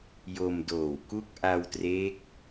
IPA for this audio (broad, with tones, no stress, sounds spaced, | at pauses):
j o˧ m d oː˨˩ w k u˥˩ k̚ ʔ a˧ w t r eː˦˥ k̚